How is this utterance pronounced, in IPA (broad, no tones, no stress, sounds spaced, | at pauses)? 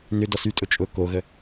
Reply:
n ʏ d ɔ s y tʼ ʊ t͡ʃʼ ʊ k o ɣ ə